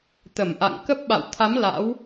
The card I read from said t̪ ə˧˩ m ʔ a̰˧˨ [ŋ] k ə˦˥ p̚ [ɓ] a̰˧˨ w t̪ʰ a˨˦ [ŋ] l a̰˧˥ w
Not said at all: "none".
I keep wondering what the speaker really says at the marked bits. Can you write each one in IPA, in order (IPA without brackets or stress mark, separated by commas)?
ŋ, ɓ, m